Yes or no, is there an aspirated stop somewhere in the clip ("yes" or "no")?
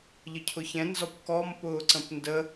yes